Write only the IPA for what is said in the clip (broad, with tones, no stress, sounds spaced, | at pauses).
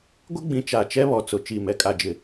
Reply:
ɡʷ ɪ˦ ɡ͡b ĩ˨ t͡ʃ a˨ t͡ʃ ɛ˦ β ɔ˨ t͡s ʊ˨ t͡ʃ i˦˨ m ɛ˦ kʼ a˦ d͡ʒ ɪ˦